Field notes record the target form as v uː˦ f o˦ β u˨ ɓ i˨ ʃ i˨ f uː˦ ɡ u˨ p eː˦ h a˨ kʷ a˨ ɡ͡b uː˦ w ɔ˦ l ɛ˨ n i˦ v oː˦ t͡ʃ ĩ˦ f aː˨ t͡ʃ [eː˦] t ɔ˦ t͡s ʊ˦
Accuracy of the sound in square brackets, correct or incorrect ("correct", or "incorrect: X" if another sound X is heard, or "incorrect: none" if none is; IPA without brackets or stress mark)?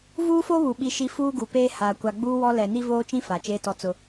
correct